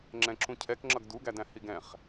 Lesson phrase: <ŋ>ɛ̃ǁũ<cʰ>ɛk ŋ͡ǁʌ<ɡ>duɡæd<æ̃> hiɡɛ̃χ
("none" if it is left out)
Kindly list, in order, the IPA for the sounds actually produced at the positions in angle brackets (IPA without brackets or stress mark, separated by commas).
ŋ͡ǁ, cʰ, ɡ, æ̃